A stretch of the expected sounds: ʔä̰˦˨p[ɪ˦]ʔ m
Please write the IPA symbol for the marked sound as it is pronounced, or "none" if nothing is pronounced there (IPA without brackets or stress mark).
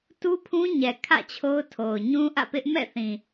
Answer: ɪ˦